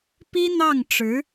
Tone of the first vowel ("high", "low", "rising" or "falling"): high